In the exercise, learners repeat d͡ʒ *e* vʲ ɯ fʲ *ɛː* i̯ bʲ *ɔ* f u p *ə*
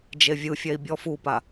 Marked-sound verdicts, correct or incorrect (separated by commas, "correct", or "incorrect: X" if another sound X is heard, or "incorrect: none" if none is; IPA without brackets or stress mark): correct, incorrect: ɛ, correct, incorrect: a